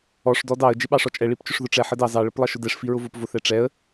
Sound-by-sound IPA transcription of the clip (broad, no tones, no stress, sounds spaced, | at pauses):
ɔ ʂ d ɔ d ɑ ə̯ d͡ʒ ɪ ɓ ɑ ʂ ɔ t͡ʃʼ ɛ ɭ i p t͡ʃ ʊ ʂ ð ʊ ʈ͡ʂ ɛ ħ ə d ɑ z ɑ ɭ ə p lˠ ʌ ʃ ʊ d ɛ ʂ f i ɹ ʊ v ʊ p v ʊ θ ɛ ʈ͡ʂ ɛ ə̯